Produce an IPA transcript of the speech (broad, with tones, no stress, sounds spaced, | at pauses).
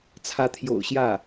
t͡sʰ ä˧˥ t̪ʰ j o̰˨˩ ʊ̯ ɕ j ä˥˩